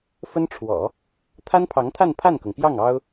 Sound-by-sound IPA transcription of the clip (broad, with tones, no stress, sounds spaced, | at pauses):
f ə˥ n ʈ͡ʂʰ w ɔ̰˨˩˦ | t̪ʰ a˥ n pʰ ɑ˧˥ ŋ t̪ʰ a˥˧ n pʰ a˥˩ n k ɤ˩ ŋ p j ɑ˥˩ ŋ ɑ˥ ʊ̯